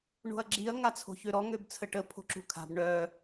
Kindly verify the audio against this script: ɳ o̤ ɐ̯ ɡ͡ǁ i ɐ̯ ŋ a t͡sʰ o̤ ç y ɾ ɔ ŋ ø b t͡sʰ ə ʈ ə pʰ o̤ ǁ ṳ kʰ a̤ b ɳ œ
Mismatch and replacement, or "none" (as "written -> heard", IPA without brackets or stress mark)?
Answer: y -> ø